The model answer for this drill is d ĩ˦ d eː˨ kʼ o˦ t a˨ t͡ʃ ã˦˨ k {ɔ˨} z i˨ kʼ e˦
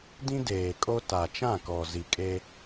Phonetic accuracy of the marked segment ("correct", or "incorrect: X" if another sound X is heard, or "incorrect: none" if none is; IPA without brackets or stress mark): correct